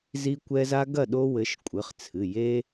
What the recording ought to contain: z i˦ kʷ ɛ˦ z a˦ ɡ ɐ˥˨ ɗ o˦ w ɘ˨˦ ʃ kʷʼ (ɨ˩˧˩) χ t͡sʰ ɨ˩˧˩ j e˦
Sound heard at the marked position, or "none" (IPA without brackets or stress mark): ɨ˩˧˩